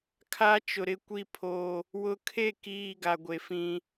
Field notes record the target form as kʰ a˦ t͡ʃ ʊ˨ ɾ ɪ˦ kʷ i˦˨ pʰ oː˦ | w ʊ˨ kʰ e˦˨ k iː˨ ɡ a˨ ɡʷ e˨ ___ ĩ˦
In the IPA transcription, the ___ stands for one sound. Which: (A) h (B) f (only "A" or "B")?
B